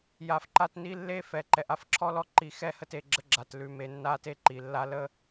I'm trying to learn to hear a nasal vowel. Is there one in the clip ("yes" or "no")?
no